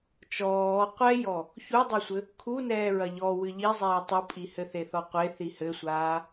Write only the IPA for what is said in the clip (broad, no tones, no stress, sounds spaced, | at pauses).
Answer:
t͡ʃ ɔː qʷ ɛ j ɔ | ç u dˤ ɛ sʷ ɘ | kʰ u n ɛː ɹ ɐ ʎ ɔ w ɨ ʎ i zˤ ɛː tˤ u pʼ i h ɘ θ e θ ɔ qʷ e θ i h ɘ sʷ aː